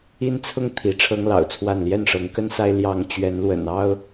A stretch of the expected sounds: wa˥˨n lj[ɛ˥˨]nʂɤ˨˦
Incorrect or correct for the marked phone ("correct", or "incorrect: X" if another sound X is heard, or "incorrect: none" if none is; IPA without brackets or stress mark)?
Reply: correct